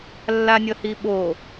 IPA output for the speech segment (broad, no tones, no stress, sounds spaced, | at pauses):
lː a nʲ ʌ h i ɓ o